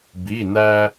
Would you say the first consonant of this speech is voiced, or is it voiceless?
voiced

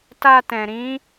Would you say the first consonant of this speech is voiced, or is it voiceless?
voiceless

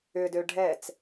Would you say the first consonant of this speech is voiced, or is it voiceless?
voiced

